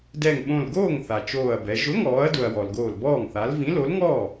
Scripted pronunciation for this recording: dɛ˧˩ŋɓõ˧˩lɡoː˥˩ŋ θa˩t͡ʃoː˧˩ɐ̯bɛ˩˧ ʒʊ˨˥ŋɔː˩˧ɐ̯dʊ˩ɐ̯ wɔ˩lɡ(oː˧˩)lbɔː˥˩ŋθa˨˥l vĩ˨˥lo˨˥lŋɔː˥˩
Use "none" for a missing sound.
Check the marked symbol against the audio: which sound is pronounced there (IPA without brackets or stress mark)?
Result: oː˧˩